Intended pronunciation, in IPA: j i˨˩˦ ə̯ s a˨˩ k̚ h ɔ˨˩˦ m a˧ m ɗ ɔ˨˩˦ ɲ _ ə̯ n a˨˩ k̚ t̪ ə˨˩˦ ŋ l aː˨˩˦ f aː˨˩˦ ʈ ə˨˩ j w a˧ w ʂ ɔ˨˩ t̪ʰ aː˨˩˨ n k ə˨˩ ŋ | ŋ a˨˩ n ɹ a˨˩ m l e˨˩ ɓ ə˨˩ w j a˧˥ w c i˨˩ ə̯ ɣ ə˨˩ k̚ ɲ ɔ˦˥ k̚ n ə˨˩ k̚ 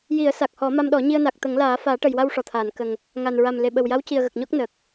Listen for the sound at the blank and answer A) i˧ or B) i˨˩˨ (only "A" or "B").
A